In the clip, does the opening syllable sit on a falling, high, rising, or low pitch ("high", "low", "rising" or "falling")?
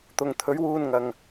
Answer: low